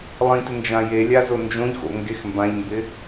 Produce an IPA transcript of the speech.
lˠ ĩ t ɪ n d͡ʒ ã j e lʲ a z ʊ n d͡ʒ õ ʎ x o̰ ŋ ɡ e x m b ã ʎ m b ɪ

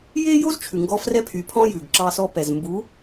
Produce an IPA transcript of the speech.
j e˦ j o˦ z t͡ʃʰ ʉ˨ ŋ ɡ ɔ˦ f r ɛ˦ pʰ y˨˦ pʰ ɔ̃˦ j ʉ˨ ɡ ǁ ɑ˦ s ɔ˦ p ɛ˨ z m b u˨˦

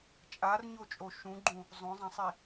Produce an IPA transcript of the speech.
t͡ʃʼ a r ɲ o t͡ʃʼ o ʃ ũ ɡ͡ǃ ũ | zˤ õ zˤ ã sˤ i

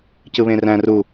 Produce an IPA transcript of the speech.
c ɯ β ẽ r æ̃ r u

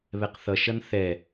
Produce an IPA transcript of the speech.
β ɛ q θ ʌ ʃ ʌ n θ ɛ

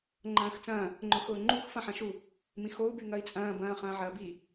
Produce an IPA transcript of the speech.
ŋ͡ǃ ɐ̃ː x t͡s ɐ̃ː | ŋ͡ǃ ʊ x ʊː ŋ͡ǃ u x f ɐ̃ ħ ɐ̃ ʃ u | m ĩ x o u̯ b y ŋ ɐ i̯ t͡sʼ ɐ̃ː b ɐ̃ː χ ɐ̃ː ʕ ɐː b i

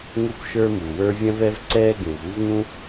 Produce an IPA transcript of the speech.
ŋ u˥ p ʃ ə˞˥ m u˩ w ə˞˥ vʲ ɐ̃˥ v ɛ˥ v ǀ ɛː˥ ɡ ũ˩ v u˥ v ŋ ũ˥

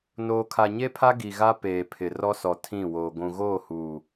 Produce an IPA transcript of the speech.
n oː˨ kʰ a˨ ɲ e˦ pʰ a˦ ɡ i˨ ɣ a˦ p eː˨ pʰ ɪ˨ r ɔ˦ s ɔ˨ tʰ ĩ˦˨ w oː˨ ɡʷ ũ˨ ɣ oː˦˨ h uː˨

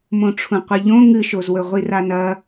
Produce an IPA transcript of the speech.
m õ ʈ͡ʂʰ ũ qʷ ɨ ʎ õ ŋ ɨ ʃ o z w ɵ ʁʷ i r a n ɐ

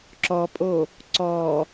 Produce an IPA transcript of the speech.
ǁ ɔ pʼ o | ǀ ɔ

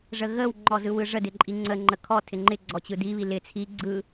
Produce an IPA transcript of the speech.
ʐ ə ɣ ə w ŋ͡ǃ ɔ z ɯ w ɯ ʐ ə d ɪ ǃʼ i ŋ͡ǀ ə ŋ͡ǃ ə kʰ ɔ tʰ ɪ ŋ͡ǃ ɪ ɡ͡ǀ ɔ t͡ɕ ɯ d i β i l ɪ t͡sʰ i ɡ͡ǀ ɯ

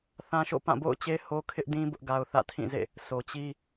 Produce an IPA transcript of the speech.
θ ã˦ ʃ o̰˦˨ p ã˦˨ b o̰˦˨ ʊ̯ t͡ɕ e˦ h o˦ kʰ ɪ˦ ʔ d ĩ˦ b ʊ˦ ʔ ɡ a˦ ʊ̯ θ ä̰˦˨ tʰ ĩ˦˨ z ḛ˦˨ | sʰ o˨ t͡ɕ i˦

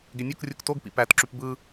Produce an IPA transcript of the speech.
ɡ e nʲ o k rʲ u k t o ɡ p ḭ p æ t ǁ y p b ɯ

